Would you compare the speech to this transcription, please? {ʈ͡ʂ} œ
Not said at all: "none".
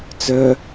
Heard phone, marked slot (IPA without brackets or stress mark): t͡s